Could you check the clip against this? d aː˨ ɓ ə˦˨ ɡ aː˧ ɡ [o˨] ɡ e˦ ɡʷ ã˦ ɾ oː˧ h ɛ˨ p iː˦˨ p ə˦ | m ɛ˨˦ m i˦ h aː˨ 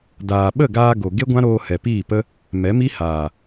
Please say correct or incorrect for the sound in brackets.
correct